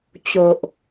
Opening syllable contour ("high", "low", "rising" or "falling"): low